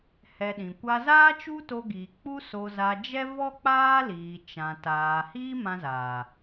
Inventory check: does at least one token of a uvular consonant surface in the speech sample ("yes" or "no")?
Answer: no